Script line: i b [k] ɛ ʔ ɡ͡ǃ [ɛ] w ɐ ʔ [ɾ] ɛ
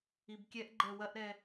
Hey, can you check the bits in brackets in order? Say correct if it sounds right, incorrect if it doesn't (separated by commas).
incorrect, correct, correct